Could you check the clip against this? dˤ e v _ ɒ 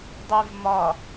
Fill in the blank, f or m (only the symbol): m